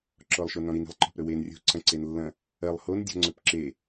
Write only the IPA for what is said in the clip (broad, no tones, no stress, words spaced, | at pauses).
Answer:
ǁɔlˠʃonɔ̃ɾin i̤lˠǃɔ̤pɾɵwen rʲo̤ ǀɐ̃ǀenlːɐ̃ | ɐlˠ hondʲɔ̤ŋ͡ǀɵp ǁe